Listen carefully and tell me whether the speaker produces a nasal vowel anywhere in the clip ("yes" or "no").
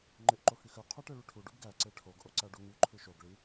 no